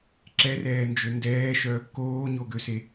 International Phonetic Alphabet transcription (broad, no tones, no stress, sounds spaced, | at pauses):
ǁ ɛ r ɛː n d͡ʒ ø n d ɛː ʃ œ | k oː ɲ o ɡ ø s e